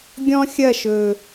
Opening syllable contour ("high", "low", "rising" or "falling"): high